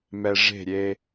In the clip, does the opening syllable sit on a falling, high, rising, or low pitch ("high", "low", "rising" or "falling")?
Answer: low